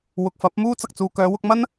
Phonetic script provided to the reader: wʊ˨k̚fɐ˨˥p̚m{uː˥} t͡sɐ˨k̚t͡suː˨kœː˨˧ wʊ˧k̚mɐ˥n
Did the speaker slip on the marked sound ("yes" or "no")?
no